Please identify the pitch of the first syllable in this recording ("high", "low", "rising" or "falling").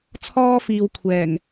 high